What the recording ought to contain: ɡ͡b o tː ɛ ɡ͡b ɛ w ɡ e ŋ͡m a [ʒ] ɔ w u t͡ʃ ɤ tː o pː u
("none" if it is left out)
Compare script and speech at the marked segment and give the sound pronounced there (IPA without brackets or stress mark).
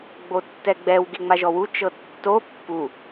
ʒ